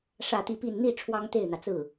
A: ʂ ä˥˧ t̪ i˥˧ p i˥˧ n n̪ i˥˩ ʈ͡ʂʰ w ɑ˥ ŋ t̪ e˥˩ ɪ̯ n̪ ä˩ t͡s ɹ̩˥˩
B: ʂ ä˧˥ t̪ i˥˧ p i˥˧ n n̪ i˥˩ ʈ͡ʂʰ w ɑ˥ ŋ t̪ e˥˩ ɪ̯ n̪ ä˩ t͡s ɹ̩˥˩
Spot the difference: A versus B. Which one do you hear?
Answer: A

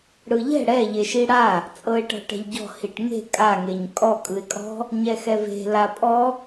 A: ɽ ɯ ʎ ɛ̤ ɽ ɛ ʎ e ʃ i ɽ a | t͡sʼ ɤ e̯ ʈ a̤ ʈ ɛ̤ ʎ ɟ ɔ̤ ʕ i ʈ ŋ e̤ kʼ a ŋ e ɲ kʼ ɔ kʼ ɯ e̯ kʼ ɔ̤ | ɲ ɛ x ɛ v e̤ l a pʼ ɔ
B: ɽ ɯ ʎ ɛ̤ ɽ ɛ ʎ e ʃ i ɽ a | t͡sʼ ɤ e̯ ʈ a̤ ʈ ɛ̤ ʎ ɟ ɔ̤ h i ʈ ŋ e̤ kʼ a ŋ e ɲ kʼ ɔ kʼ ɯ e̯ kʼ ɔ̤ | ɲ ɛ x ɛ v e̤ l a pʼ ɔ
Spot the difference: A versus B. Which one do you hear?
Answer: B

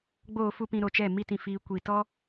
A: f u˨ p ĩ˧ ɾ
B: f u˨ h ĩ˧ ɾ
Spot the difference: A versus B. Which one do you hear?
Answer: A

